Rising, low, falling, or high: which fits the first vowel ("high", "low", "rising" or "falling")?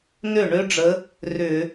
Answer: falling